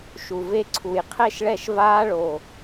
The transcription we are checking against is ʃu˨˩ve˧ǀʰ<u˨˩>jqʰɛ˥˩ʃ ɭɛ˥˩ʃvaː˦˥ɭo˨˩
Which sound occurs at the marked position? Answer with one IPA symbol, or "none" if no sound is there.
u˨˩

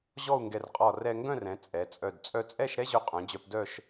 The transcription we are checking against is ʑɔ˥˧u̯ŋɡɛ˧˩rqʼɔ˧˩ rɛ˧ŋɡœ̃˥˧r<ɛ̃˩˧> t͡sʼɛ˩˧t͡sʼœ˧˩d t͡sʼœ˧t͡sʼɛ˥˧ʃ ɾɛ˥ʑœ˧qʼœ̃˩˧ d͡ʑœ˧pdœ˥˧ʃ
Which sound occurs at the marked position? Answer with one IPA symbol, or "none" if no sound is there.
ɛ̃˩˧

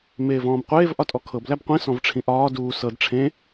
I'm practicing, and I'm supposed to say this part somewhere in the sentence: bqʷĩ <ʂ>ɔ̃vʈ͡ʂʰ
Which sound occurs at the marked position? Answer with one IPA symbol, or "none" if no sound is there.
s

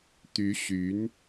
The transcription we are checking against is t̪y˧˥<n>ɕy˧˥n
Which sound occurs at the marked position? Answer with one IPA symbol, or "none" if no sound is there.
none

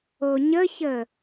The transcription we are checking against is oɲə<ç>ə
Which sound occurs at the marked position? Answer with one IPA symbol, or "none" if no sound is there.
ç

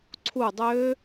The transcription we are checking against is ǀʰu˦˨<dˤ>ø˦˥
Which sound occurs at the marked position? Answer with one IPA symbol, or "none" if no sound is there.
dˤ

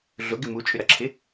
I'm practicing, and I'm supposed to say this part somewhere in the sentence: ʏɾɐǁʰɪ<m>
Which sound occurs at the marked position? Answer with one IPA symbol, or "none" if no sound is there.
none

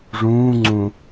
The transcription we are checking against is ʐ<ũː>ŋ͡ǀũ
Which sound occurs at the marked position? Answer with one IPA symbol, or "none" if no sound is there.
ũː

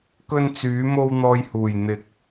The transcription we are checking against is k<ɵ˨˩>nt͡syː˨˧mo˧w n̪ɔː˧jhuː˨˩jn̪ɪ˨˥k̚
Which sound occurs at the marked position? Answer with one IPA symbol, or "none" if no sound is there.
ɵ˧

